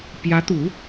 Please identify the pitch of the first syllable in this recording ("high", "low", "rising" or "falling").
rising